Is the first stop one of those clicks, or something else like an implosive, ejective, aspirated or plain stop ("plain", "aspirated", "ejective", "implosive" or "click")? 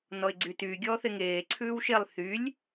click